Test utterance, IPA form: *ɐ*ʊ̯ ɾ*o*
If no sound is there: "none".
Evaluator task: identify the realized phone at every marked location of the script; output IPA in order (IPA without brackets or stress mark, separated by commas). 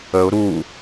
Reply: ə, u